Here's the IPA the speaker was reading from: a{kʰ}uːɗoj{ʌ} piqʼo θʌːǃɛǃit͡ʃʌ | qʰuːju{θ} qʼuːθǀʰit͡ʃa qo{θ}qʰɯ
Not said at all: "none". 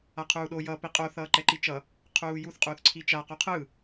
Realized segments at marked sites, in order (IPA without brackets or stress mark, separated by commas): qʰ, ʌ, θ, none